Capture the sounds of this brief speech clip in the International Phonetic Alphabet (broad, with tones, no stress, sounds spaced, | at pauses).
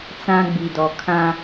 t͡s ã˦ ɡ͡b i˨ d ɔ˨ kʰ ã˦